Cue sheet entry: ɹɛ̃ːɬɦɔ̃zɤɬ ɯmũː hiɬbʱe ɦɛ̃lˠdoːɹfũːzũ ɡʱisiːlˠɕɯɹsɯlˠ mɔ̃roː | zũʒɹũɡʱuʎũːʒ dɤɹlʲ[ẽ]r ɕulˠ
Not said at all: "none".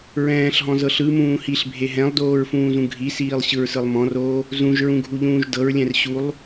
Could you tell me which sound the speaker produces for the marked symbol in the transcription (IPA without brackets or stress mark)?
ɛ̃